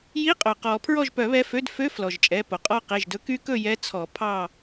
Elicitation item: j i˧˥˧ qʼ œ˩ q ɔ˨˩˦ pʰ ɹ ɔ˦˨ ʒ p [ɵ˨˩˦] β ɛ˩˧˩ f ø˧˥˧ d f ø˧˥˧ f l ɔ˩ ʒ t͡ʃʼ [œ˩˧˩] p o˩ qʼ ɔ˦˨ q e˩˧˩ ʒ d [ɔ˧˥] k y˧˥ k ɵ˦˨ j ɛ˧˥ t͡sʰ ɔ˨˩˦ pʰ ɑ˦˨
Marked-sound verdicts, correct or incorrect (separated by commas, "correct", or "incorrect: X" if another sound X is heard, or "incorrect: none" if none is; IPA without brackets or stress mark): incorrect: œ˨˩˦, incorrect: ɛ˩˧˩, incorrect: ɵ˧˥